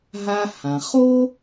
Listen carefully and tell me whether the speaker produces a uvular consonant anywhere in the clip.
yes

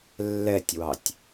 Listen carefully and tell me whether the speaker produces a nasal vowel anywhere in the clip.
no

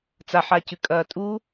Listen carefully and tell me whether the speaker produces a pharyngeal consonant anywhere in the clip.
yes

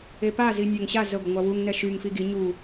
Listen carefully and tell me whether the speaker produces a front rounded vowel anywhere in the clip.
yes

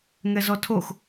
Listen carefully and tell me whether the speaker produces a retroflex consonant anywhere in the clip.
no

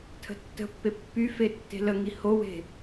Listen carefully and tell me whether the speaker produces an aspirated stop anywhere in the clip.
yes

